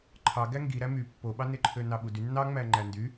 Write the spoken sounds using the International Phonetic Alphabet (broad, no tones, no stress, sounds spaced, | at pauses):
ǃʰ ɑ ɡ æ ŋ ɡ i ɾ æ m y pː o ɓ ɑ n e ǃʰ ø n ɑ ɓ u d y nː ɑ ŋ͡m æ ŋ͡ǃ æ n d y